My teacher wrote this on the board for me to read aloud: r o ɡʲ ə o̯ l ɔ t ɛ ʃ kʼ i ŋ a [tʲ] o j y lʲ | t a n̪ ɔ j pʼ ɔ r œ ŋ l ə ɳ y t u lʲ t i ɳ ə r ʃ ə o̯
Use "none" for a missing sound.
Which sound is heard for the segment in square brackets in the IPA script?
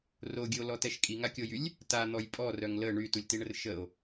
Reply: kʲ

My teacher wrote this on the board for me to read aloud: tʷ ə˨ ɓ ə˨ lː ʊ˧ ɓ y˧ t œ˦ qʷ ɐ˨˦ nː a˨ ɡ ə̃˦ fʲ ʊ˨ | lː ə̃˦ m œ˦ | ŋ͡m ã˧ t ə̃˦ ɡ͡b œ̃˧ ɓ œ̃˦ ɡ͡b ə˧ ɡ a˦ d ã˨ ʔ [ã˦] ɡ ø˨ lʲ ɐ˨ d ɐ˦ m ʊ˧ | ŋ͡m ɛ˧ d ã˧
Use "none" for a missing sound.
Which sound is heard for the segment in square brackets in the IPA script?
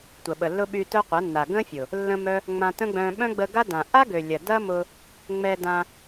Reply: a˦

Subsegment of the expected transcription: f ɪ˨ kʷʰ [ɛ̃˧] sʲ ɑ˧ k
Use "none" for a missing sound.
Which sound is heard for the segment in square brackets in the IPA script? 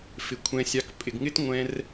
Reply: ɛ̃˧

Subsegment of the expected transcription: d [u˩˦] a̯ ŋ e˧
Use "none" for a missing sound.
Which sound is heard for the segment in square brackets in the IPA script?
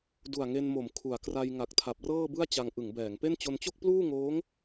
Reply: u˨˩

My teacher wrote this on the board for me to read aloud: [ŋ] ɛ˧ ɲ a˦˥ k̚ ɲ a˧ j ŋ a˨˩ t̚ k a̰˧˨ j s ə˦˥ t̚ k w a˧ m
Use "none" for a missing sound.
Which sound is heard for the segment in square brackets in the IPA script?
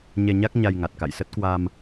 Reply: ɲ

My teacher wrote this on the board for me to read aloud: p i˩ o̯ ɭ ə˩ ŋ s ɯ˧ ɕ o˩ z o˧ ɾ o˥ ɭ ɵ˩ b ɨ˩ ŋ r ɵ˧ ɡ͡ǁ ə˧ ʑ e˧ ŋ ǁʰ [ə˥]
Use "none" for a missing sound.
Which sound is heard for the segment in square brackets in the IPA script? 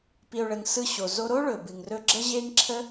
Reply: ə˥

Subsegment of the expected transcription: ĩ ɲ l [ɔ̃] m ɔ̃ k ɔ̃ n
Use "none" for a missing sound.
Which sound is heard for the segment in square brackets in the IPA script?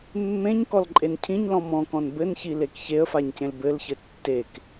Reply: ɔ̃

